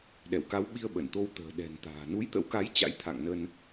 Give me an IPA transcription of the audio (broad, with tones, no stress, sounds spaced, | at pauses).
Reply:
ɗ ɛ˧˩ w k a˨˦ w ɓ i˧ ə̯ ɓ ə˧˩ n t̪ o˧ w t̪ ə̤ː˨˩ ɗ ɛ̤˨˩ n t̪ a̤ː˨˩ n u˨˦ j t̪ ə̰˧˥ w k a˨˦ j t͡ɕ a̰˧˥ j t̪ʰ a̰˧˨ ŋ n ə˧ n